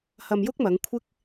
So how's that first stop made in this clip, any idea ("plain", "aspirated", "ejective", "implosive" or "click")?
plain